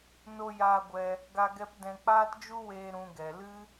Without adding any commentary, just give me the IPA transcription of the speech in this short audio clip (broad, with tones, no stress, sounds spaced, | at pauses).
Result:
n o˧ j aː˧ ɡʷ ɛ˧ | ɡ a˧ ɡ ɛ˧ p d ɛ̃˧ k͡p aː˦ t d͡ʒ u˦ w eː˧ ɾ ũ˨ ɡ ɛ˨ l ɨ˦